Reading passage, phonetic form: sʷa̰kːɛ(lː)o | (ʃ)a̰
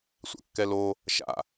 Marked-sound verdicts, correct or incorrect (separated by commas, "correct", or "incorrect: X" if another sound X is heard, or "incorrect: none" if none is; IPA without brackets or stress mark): incorrect: l, correct